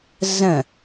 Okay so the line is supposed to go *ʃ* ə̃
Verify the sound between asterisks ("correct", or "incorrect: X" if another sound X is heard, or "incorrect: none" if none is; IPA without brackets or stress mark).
incorrect: z